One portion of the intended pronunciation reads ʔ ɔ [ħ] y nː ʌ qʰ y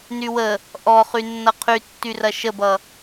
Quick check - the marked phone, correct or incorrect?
incorrect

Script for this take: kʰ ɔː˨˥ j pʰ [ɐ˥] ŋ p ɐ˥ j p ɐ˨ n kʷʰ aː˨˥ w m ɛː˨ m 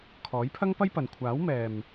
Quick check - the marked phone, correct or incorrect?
correct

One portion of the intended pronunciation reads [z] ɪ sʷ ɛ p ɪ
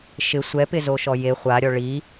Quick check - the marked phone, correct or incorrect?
incorrect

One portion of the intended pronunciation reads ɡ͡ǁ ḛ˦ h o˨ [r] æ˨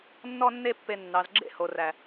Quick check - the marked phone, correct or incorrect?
correct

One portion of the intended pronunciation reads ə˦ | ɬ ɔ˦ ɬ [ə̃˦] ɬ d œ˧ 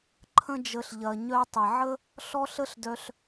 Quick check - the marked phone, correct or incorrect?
incorrect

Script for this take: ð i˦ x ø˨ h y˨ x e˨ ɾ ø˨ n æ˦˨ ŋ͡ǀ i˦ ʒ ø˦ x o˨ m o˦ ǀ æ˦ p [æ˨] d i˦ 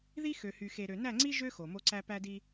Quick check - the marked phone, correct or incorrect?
incorrect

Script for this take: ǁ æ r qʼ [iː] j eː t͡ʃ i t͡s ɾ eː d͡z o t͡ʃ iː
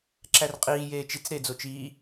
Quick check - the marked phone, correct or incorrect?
correct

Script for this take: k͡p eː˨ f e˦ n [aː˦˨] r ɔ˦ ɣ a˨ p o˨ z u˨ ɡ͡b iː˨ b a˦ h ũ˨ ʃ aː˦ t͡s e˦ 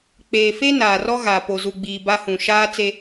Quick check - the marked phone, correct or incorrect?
incorrect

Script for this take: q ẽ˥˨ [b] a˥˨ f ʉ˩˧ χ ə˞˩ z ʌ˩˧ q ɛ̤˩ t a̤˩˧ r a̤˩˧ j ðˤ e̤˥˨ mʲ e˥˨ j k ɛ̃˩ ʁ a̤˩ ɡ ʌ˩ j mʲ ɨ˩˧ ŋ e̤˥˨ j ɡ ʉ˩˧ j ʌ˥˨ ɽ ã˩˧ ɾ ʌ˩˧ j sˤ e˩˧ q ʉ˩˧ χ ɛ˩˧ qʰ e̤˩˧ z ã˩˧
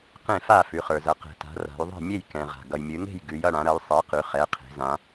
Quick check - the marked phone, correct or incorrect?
incorrect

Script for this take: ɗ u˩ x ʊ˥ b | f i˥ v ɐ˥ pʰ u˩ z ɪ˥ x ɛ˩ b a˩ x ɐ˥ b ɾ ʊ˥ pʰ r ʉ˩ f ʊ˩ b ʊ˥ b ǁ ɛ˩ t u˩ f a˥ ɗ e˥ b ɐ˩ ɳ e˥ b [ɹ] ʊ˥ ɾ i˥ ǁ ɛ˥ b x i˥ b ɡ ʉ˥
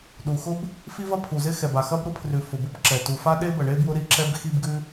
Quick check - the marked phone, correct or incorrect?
incorrect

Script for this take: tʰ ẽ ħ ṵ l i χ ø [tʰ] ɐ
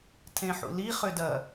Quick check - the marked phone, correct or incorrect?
incorrect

